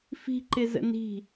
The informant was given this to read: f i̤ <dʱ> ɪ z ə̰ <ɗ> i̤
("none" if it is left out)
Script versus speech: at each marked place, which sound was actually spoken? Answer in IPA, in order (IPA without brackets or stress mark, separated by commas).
ǃ, n